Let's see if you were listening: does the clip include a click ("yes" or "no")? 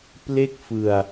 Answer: no